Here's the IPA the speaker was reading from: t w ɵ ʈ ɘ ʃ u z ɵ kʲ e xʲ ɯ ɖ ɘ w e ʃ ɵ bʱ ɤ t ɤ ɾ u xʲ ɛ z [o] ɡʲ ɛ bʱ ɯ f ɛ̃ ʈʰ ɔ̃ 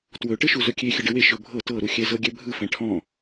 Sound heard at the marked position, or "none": ɤ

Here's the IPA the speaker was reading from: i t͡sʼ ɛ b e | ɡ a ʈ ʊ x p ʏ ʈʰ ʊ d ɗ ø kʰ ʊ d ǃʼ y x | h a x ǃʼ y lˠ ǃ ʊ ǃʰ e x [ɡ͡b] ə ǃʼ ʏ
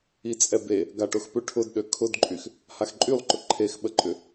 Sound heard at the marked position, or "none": ɓ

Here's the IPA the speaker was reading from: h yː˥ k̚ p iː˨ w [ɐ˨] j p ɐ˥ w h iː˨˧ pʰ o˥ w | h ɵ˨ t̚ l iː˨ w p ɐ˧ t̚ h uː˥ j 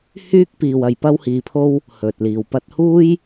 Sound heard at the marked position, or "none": ɐ˨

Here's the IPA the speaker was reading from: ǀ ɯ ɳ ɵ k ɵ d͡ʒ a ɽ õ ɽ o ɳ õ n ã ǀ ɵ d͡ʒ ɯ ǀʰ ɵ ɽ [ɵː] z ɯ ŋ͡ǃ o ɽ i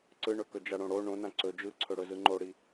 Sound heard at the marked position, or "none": ɵ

